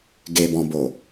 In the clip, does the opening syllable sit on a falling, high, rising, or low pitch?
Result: low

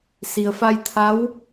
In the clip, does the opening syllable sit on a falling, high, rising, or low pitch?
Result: low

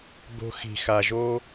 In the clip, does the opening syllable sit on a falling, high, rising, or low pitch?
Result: high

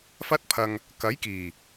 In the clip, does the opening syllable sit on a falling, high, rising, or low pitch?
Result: high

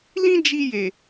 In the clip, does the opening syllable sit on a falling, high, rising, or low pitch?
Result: high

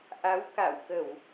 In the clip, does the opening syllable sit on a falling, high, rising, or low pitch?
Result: rising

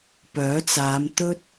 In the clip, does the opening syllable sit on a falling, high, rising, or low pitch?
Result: rising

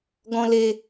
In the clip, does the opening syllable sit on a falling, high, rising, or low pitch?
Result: low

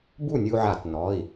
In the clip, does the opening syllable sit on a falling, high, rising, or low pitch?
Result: falling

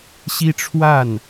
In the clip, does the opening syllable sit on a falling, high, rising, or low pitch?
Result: high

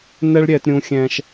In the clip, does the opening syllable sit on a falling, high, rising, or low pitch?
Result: high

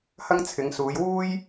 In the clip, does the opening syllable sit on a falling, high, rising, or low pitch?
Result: high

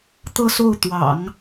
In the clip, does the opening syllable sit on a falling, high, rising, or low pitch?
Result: falling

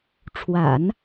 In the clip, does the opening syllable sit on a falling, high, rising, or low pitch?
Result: low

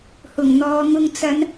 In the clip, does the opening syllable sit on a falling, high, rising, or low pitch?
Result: low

